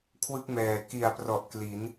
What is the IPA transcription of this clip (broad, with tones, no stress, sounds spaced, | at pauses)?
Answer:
kʰ w ɯ˥˩ k̚ m ɛː˨˩ k i˨˩ a̯ p r ɔ˨˩ ʔ k l i˩˦ n